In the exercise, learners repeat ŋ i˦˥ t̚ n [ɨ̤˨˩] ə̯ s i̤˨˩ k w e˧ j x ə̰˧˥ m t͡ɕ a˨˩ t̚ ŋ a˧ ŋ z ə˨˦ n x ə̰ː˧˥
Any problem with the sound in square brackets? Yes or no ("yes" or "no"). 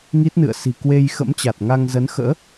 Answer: yes